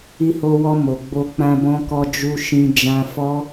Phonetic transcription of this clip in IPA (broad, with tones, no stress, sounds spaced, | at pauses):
i˧ h o˧ w ɔ˧ m o˨ ɡ͡b o˧ k͡p ã˧ b ɔ̃˧ k ɔ˧ d͡ʒ u˧ ʃ ĩ˧ d͡ʒ ã˧ f ɔ˦